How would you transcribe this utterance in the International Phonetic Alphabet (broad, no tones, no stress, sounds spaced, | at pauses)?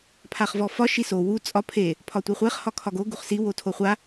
pʰ a χ v ɔ f ɒ ʃ i s o w u t͡sʼ ɒ pʰ e | pʰ ɒ tʷ i χʷ e χ h ɒ kʰ ɒ ɡ o ɡ u χ s i w o tʰ o χʷ a